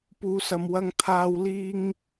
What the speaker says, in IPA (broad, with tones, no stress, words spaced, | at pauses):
puː˨˧sɐ˨mwɐ˧ŋ t̪ʰaː˨wliː˧ŋ